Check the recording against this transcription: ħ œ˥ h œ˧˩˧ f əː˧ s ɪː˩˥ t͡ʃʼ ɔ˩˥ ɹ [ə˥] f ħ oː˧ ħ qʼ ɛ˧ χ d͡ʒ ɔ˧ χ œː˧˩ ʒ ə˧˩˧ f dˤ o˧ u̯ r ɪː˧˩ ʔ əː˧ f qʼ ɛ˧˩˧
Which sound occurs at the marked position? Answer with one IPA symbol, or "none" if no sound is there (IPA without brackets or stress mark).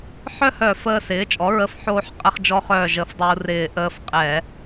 ə˧˩˧